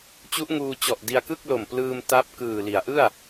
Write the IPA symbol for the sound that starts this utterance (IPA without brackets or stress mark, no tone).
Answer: t͡ɕ